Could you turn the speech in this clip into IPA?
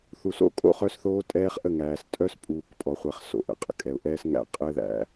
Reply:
θ u˨ s o̰˦ kʼ o̰˦ χ œ˦ s θ oː˦ tʼ ɛː˦ χ ʔ ə˦˨ ŋ æː˨ s tʼ œ˦ s pʼ uː˨ k pʼ ɔ˨ χʷ ɛ˨ χ s o̰˨ ʔ ə̰˨ qʼ ə̰˨ kʼ ɛ˨ ʊ̯ ʔ ɛː˦ s ŋ æ̰˦ qʼ ɘ˦ ð æ̰˨

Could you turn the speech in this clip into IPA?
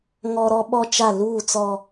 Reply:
ŋ ɔ˦ ɾ ɔ˦ ɓ ɔ˦ t͡ʃ a˦˨ l uː˦˨ t͡s ɔ˦

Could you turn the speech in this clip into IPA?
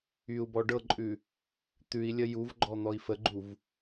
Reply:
y u̯ b ɔ ɖ ɤ ǃʼ ʉ | t̪ ʉ i̯ lʲ ə j u v ɡ͡ǃ ɔ n̪ ɔ i̯ f ə ɡ͡ǃ u v

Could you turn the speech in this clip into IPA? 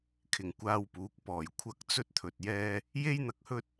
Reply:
kʰ ɪ˨˩ ŋ kʷ aː˧ w p uː˨˥ k̚ p ɔː˨˩ j kʷʰ ɐ˥ k̚ t͡s ɵ˧ t̚ t̪ʰ ɵ˨ t̚ j ɛː˧ | j e˥ j n̪ ɐ˧ k̚ h ɵ˥ t̚

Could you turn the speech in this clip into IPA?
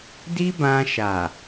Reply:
d i˦ b ã˧ ʃ a˨

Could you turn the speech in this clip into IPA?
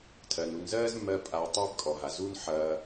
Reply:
tʰ ɜ˩ n u˨ n z ɜː˥ z mː ɜ˦ pʼ a˨ ʊ̯ tˤ ɜ˦ b kʼ ɔ˩ ɦ a˩ z uː˦ n ħ ɐː˨

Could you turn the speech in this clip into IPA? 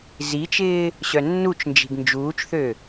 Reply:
z i t͡ʃ ɪː | ɕ œ nː u t͡ʃ n d͡ʒ i̤ ɡ n d͡ʒ uː t͡ʃ θ ø

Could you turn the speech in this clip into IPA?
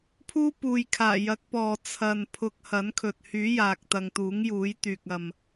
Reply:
pʰ uː˥ p uː˨ j kʰ aː˨˩ j ɐ˨˥ k̚ p ɔː˨ t͡sʰ ɐ˨ n pʰ ʊ˧ k̚ h ɐ˨˥ n kʰ ɵ˨ t̚ h yː˨˥ j aː˨ k̚ t̪ ɐ˨ ŋ t̪ uː˨˥ ŋ j uː˨˥ j t̪ yː˨ k̚ ɐ˨ m

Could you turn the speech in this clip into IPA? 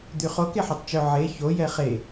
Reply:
d̪ y χ o k e ħ o tˤ t͡ʃ œ ʕ e ç o j ɛ χ e

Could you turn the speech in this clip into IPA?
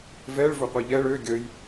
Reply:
v ɛ ɭ v ɵ qʷ i ʎ ɛ ɭ ø ɡʲ ə j

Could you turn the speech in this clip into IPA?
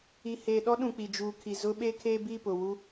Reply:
i˨ h eː˨ ɗ ɔ˦ ɗ ũ˨ k͡p i˨ d͡ʒ uː˨ kʰ i˨ z ʊ˦ ɓ e˦ kʰ eː˦ b i˦˨ p ʊ˨ w u˦

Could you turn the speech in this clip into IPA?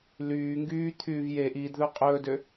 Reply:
l yː ŋ ɡ yː t̪ʰ yː v j e ʔ iː d ð œ qʼ ɵː d ø

